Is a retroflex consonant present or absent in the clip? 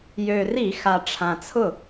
present